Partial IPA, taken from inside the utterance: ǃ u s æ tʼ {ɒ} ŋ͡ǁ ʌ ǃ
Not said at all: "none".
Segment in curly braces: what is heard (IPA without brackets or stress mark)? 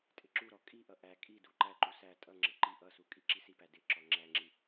ʌ